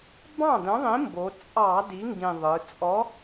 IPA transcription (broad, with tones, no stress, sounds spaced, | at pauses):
b ɑ̃˥˩ d ə̃˨˥ ðˤ ĩ˨˥ m b o˩˧ t͡sʼ ɑ˧˩˧ d i˨˥ ŋ ɡ ĩ˨˩ ðˤ ɯ˩˧ t͡sʼ ɔ˨˥